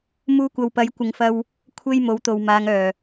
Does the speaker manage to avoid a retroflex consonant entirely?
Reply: yes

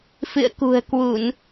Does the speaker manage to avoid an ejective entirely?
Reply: yes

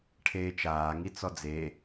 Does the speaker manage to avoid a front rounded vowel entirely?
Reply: yes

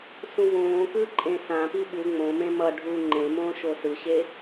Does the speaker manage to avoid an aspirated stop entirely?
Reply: yes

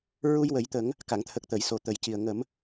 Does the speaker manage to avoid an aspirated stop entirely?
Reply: no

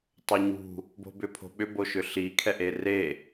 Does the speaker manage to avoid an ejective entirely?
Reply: yes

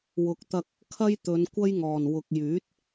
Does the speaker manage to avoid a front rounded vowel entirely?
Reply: no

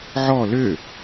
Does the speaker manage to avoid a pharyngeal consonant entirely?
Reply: no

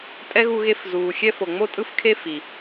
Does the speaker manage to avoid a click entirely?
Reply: yes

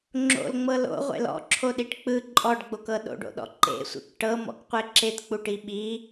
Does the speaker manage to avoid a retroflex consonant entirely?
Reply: no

